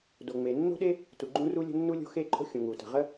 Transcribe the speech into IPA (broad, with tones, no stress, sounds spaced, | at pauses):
d o˩ ŋ͡m e˩ nː o̤˥ ɗ e˥ | t u˩ ɡ͡ǃ ũ˥ r u˥ lʲ ə̤˥ nː u˥ lʲ o̤˥ x e˥ ǃʼ o̤˥ xʲ ũ˩ ŋ u˩ t ə̤˩ ʁ ə˥